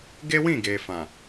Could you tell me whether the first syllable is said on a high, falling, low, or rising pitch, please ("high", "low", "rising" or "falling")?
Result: high